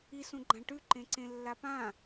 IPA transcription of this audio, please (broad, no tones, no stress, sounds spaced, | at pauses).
i s ũ ɡ͡ǃ ã ʈ ʉ ǃ ẽ ǀ ẽ lː a p ã